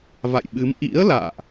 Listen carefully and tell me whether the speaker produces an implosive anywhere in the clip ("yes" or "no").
yes